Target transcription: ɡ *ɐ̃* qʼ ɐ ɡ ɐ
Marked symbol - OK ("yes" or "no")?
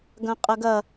yes